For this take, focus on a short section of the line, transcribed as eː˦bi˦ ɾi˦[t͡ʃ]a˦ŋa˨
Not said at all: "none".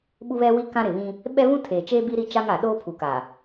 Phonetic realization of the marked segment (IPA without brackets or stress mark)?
t͡ʃ